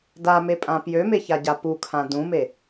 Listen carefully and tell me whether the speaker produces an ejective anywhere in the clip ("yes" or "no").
yes